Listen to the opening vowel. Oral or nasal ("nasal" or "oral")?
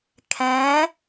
nasal